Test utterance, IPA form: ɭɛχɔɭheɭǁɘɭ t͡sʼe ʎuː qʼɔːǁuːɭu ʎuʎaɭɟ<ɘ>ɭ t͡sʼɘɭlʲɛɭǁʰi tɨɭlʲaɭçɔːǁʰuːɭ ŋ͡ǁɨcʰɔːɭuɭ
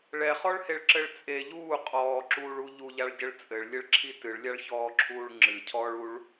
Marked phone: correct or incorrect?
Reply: correct